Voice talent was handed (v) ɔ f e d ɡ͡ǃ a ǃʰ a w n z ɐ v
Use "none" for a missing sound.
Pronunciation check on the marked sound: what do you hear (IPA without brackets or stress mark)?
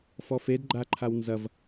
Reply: f